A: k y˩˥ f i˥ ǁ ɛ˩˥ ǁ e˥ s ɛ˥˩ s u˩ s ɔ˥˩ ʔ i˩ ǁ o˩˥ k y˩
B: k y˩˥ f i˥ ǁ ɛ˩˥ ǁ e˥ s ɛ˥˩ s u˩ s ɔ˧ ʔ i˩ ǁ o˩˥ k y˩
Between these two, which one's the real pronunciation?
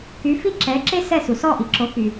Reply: A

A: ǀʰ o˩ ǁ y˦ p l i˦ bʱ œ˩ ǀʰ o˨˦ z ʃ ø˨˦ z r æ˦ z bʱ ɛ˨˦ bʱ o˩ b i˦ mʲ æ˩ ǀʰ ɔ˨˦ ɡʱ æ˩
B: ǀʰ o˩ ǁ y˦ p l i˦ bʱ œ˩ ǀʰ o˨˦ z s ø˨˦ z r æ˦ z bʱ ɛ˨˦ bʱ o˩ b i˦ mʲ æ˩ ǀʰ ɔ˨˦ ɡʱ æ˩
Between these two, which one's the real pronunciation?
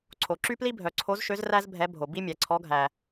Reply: A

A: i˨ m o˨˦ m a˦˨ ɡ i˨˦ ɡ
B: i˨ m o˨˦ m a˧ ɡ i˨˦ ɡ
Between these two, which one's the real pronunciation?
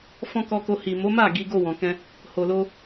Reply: A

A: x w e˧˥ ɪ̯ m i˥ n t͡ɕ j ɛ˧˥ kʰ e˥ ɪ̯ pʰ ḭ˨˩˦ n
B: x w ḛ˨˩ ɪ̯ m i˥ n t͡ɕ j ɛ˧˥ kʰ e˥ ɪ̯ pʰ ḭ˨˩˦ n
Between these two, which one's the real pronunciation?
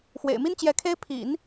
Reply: B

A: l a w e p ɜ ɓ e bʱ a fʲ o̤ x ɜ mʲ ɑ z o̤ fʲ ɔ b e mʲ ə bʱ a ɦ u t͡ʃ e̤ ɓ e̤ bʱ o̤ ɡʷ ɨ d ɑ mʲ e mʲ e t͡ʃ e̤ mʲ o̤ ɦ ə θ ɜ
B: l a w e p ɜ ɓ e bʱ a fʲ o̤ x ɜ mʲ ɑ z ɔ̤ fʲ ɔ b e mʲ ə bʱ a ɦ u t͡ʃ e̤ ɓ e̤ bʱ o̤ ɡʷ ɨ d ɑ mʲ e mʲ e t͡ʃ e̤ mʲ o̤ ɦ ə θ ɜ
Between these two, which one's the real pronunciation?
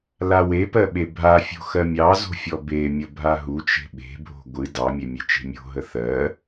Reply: A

